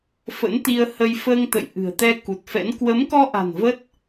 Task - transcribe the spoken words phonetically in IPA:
fə̰˧˥nt̪i˧ə̯hə˧j fəː˧ŋt̪ə̰˧˨jʔɨ̤˨˩ə̯t̪ɛ˧ ku˨˩t̚fɛ̰˧˥n kwə˨˦mkɔ˧ʔa̤˨˩n və˦˥t̚

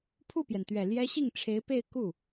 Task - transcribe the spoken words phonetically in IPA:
pʰu˥˩pjɛ˩nt̪ɥɛ˨˩ ljɛ˥ ɕi˥˩ŋʈ͡ʂʰe˧˥ɪ̯pe˥˧ɪ̯ ku˥˩

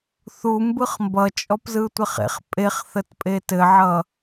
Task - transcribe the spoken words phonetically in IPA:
θu mbɯχmbʌ t͡ʃʼɔpzɯtʷɘχḛχ pʼeχθət pʼetɘʕʌ

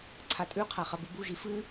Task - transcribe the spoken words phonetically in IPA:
ǀʰatʼʉqʰa χɐbɨbuʒi fɨ

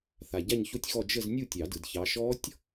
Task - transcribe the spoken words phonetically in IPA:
θa˨ɟa˥˨ɲço˥˨tʲxɔ˥˨ d͡ʒə˥˨z nʲu˥˨tʲɑ˨˩˦ dɯ˨dçɑ˨˥ ʃɔ˦˥tʲ

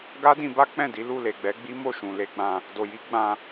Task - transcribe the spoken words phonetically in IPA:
ɡa˦dĩ˧ba˦ k͡pɛ̃˦˨di˨˦ lu˦˨le˨ɡ͡bɛ˨˦ɡ͡bi˦ mo˦˨ʃũ˨le˨˦ɡ͡bã˧ | do˨ji˨˦ ɡ͡bã˧

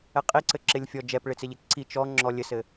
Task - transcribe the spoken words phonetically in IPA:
ɛqʼiǀɘ ǁɪlʲfʲɔ d͡ʒɛpɭɪt͡sɪʎɪ ǀi t͡ʃɔ ŋ͡ǁɔlʲɘsɘ

